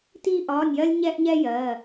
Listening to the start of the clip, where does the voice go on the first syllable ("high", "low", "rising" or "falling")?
high